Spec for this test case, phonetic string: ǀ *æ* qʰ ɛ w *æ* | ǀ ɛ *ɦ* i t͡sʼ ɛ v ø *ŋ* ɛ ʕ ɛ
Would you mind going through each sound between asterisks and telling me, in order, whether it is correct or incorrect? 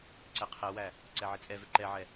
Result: incorrect, correct, incorrect, incorrect

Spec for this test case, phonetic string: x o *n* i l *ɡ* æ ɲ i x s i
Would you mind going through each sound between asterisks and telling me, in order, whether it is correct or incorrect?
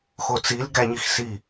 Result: incorrect, correct

